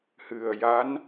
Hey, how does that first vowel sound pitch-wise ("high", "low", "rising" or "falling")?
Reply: low